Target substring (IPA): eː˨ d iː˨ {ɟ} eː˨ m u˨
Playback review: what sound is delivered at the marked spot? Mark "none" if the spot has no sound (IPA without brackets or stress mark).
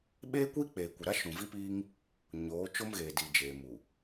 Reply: d͡ʒ